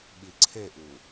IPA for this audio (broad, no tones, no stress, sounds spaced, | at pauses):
ɓ i ǀʰ e ʔ u